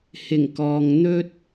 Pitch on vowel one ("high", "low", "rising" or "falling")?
low